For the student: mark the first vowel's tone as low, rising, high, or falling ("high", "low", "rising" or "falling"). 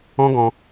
high